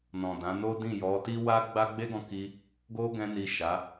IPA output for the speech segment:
n ɔ̃˨ d ã˨˦ n o˦ d ĩ˦˨ j ɔ˨˦ t i˦ w a˦ ɡ͡b a˦ ɡ͡b e˦ ɡ ɔ̃˧ k i˧ | ɡ o˦ ɡ ɛ̃˧ n i˨ ʃ a˨˦

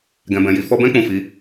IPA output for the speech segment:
ɡ ɛ̃˨ b ɛ̃˨ j i˨ f ɔ˧ b ɛ̃˦ k͡p ũ˦˨ f i˨˦

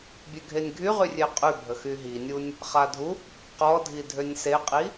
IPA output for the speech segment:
bʲ ø ɡʱ e nʲ ɡʱ y ʁ y rʲ e qʼ y bʱ ə x y ɦ i nʲ u nʲ | χ a dʱ u | q ɔ dʱ i dʱ ø nʲ s e qʼ i

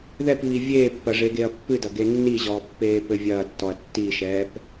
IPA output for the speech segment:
ð ɛ p β i vʲ eː pː ɐ ʐ e ɡ e ɐ̯ pː ɨ d ɐ ɡ e nː i ʑ ɔː pː eː p ɘ vʲ ɐː tː ɔ ɐ̯ tː i ʃ ɛː p

